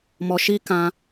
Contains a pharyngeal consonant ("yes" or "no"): no